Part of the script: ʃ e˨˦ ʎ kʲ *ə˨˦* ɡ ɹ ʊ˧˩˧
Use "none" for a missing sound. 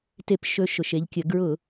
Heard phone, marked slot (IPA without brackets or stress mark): ə˨˦